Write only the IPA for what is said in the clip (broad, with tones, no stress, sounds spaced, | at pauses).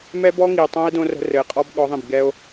m ɛ˦ b ɔ˦ ŋ i˨ e̯ tˤ õ˦ e̯ d õ˦ r ə̤˦ r ɘ˨ e̯ qʼ ɔ˦ b ɠ ɔ˨˦ ðˤ ĩ˨ b ɡ ɛ˦ o̯